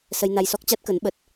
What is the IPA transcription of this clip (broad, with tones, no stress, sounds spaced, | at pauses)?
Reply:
s ə˧ j n a˧ j s ɔ˦˥ k̚ t͡ɕ a˦˥ t̚ k ə˨˦ n ɓ ə˨˩ t̚